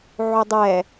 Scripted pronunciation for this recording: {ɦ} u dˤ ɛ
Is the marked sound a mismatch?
yes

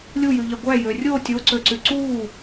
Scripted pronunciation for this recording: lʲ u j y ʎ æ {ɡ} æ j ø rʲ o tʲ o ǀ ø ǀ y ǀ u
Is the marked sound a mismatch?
yes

